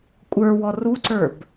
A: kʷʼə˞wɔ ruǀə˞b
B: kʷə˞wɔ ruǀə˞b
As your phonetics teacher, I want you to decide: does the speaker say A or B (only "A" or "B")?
A